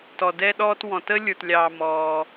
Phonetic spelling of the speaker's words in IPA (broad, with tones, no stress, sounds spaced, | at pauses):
t ɔ˨ d ɛ˧ ɗ ɔː˧ t w ɔ̃˨ t ə˧ lʲ ə˞˨ t lʲ ɑː˨ m ɔː˧